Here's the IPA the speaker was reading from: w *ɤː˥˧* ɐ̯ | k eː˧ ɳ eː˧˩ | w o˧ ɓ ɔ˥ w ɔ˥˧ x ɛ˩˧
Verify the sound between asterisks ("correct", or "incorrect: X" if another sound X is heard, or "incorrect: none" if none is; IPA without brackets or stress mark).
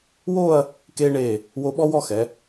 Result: incorrect: oː˥˧